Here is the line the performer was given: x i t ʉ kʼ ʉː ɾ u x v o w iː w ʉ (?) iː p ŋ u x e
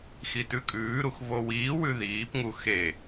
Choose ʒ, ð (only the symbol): ð